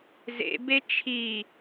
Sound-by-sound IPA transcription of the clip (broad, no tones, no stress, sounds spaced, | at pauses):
z ḛ b e t͡ʃʰ iː